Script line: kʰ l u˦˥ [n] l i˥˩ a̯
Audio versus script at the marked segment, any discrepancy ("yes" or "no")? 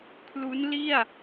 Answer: no